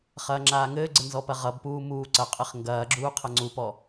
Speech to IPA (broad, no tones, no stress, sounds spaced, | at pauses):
χ ɐː ŋ͡ǁ aː ŋ ɘː ɡ͡ǀ ɘ n z ɔ p ɐ ʁ ʌ b p uː m uː ǀ ɐ qʼ ɘ χ ŋ ɡ ɐː ɡ͡ǁ uː qʰ ɐ ŋ͡ǀ u p ɔ